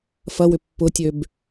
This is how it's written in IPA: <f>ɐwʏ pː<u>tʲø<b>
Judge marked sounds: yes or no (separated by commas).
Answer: yes, no, yes